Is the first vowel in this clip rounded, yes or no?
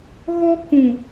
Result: yes